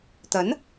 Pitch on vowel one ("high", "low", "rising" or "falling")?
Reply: rising